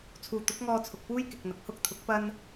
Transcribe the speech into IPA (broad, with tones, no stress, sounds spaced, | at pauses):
t͡sʰ uː˨ t̪ ʊ˨˥ k̚ ŋ ɔː˧ t͡sʰ ʊ˨ k̚ p uː˥ j k ɪ˨ k̚ n̪ ɐ˨ k̚ h ʊ˥ k̚ t̪ʰ ʊ˨˥ k̚ p ɐ˥ n